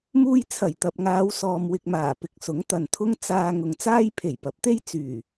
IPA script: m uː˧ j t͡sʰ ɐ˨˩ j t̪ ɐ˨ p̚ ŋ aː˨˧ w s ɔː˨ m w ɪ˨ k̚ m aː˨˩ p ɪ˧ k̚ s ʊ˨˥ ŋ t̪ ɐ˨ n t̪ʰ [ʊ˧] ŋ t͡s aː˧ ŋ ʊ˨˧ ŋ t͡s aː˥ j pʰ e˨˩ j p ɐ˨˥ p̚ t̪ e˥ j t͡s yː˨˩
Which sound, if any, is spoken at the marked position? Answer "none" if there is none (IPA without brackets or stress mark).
ʊ˥